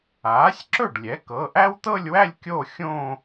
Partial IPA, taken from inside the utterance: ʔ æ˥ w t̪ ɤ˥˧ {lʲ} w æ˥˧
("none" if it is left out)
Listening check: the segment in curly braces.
lʲ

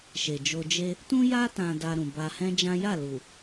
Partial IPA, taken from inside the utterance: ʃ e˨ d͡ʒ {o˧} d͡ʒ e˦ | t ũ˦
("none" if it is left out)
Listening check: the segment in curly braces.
o˧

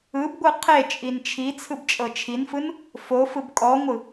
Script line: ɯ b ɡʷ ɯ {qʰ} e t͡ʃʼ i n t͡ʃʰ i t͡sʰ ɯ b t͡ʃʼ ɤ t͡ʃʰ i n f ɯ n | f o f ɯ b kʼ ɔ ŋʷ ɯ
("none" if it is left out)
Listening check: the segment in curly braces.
qʰ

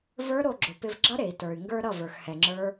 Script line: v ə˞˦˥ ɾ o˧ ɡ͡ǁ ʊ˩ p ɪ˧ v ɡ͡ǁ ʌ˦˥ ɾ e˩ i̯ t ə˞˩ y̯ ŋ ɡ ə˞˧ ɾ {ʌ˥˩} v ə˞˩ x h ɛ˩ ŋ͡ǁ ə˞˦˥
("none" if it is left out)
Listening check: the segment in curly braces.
ʌ˥˩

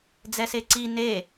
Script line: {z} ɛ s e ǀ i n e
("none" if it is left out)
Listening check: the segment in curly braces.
d͡z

